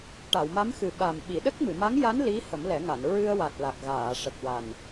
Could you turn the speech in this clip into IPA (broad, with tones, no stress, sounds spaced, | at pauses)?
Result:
ʈ a˨˩˨ w m a˧˥ m x ɨ˨˩ ɓ a˨˩ m ɓ i˨˩˨ ɗ ə˦˥ k̚ m ɨ˨˩˨ m a˧˥ ŋ j a˧˥ n l i˧˥ h ə˨˩˦ m l ɛ˨˩˦ ŋ a˨˩˨ n ɹ ɨ˧ ə̯ w a˨˩ t̚ l a˨˩ k̚ ɣ aː˨˩˨ ʂ ə˨˩ k̚ w a˨˩ n